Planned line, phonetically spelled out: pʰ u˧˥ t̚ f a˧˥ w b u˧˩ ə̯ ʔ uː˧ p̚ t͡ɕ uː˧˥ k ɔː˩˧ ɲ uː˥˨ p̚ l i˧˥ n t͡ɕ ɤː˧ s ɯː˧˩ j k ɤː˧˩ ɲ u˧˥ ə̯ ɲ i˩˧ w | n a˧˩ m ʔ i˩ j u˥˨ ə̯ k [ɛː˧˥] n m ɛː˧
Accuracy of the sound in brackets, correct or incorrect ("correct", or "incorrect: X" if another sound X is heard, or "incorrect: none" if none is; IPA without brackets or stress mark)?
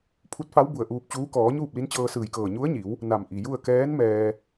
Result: correct